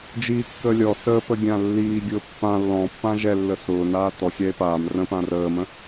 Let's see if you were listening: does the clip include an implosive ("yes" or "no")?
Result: no